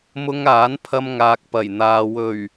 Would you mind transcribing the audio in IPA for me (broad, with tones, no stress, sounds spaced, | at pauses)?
m ʊ˥ ŋ aː˨˥ n pʰ ɐ˧ m ŋ aː˨ k̚ p ɐ˨˩ j n̪ aː˨ w ɵ˨˩ ɥ